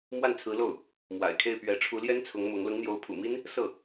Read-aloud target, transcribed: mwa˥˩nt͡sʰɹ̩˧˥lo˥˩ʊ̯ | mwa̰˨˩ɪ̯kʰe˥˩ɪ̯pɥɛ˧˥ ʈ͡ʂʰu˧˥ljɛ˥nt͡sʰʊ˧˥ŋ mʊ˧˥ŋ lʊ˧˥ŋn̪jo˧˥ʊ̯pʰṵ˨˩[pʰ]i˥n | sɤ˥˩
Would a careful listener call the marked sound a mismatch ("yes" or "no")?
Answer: yes